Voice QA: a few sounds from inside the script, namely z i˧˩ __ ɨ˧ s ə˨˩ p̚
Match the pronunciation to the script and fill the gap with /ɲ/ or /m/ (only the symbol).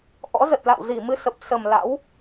m